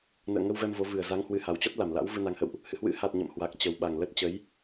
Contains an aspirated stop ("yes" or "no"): no